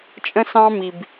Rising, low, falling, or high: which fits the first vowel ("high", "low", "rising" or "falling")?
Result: high